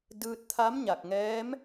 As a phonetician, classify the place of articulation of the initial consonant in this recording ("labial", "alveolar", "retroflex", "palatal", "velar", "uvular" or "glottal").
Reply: alveolar